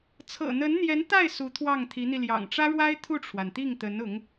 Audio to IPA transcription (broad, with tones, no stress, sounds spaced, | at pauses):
t͡sʰ ɤ̰˨˩ n̪ ə˧˥ n n̪ j ɛ˧˥ n t̪ a˥˩ ɪ̯ s u˧˥ t̪ʰ w ɑ˥˩ ŋ t̪ʰ i˧˥ n̪ i˧ l j ɑ̰˨˩ ŋ ʈ͡ʂ ä˥ ɻ w a˥ ɪ̯ t̪ʰ u˥˩ ʈ͡ʂʰ w a˩ n t̪ i˥˩ ŋ t̪ ə˧˥ n ʊ˧˥ ŋ